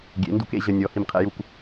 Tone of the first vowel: rising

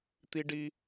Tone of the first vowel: high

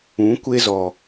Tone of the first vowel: rising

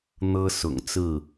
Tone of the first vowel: high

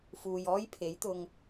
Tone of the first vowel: low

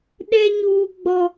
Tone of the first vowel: high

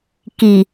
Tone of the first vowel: low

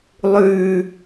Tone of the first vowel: high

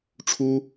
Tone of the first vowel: high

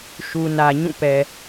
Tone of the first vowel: low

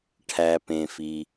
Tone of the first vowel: low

